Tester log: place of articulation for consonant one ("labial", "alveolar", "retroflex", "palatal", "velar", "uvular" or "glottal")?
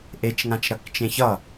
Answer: glottal